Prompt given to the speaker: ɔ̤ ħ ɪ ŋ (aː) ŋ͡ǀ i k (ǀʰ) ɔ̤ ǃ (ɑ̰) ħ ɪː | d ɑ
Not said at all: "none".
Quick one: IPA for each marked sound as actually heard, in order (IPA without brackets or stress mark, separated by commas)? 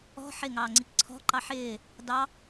ɑː, ǀʰ, ɑ